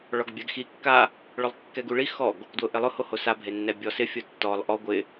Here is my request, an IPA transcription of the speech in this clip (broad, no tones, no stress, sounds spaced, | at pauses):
ɭ ɔ ɡ bʲ a ɡ x i kː a | ɭ ʊ lˠ kː ɛ ɡ u ɭ i x ɔ ɡ | d w ʊ ʔ ɪ lˠ ʊ h o h o s a bʱ e nː ɛ bʲ ɔ s ɪ fʲ o tː ɔ lˠ ʔ ɔ ɡʷ ɪ